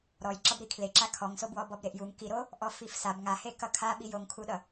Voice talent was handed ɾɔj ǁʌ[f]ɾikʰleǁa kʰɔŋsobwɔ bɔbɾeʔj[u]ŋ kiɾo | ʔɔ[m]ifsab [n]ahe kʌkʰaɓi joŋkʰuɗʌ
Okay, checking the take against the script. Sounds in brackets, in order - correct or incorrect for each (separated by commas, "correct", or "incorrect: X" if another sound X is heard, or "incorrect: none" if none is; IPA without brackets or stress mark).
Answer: incorrect: b, correct, incorrect: f, incorrect: ŋ